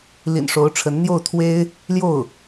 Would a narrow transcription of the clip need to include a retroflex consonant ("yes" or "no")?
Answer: yes